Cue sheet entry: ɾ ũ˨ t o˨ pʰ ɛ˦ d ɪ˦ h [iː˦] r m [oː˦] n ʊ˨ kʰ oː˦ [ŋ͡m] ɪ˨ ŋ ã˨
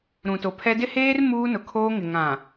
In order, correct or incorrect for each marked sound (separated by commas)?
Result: incorrect, incorrect, incorrect